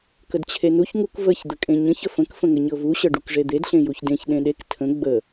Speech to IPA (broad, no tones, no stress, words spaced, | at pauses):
kədt͡ɕʰenuç ŋukvəç d̪əkʼẽɲə̃ç əfə̃k fə̃ŋəɲɤvu ɕɤɖukʐed̪ed ɬẽjuçdẽç ɗẽɗek tʰə̃ ɡ͡bə